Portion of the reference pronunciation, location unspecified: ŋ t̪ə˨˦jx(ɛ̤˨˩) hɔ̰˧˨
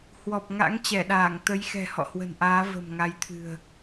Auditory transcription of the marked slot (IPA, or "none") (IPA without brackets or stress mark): ɛ̤˨˩